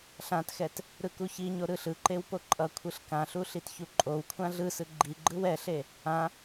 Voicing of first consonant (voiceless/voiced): voiceless